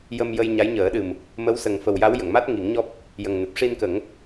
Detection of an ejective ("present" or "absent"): absent